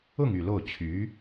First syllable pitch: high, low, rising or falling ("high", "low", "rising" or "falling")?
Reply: falling